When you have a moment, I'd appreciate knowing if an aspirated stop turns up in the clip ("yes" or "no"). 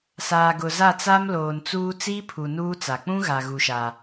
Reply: yes